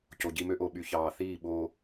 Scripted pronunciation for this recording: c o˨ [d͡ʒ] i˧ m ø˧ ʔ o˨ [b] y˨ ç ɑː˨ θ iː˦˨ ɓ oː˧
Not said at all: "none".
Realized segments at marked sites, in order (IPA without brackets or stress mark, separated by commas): ɟ, ɓ